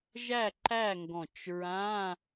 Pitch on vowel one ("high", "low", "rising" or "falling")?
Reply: falling